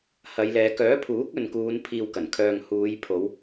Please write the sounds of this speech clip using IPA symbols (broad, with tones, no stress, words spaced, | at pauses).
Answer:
hɐ˨˧jlɛː˨˧ kœː˨˥pʰuː˨˥k̚ ɵ˨nkuː˨˧n pʰiː˨w kɐ˨˩nkʰœː˨ŋ huː˨˧jpʰo˨˧w